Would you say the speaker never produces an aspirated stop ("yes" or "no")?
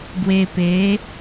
yes